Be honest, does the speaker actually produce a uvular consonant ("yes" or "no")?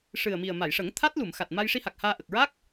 no